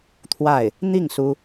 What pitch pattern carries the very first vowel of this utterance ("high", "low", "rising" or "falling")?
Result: falling